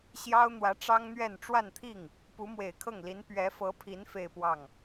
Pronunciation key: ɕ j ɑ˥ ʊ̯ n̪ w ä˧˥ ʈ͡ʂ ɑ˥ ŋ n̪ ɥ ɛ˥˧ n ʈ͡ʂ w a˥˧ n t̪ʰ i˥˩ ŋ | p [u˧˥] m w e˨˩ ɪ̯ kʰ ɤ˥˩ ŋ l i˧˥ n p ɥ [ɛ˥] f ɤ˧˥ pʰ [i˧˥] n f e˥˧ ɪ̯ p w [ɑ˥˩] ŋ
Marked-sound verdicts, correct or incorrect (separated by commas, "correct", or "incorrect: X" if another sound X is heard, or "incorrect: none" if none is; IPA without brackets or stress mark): correct, incorrect: ɛ˧˥, correct, correct